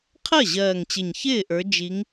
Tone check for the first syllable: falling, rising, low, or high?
falling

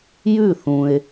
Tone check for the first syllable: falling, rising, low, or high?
falling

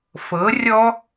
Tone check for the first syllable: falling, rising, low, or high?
rising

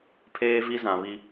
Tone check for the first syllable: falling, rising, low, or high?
high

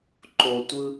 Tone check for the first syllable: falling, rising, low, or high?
low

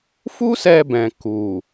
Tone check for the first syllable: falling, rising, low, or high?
high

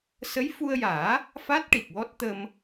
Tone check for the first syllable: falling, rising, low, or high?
rising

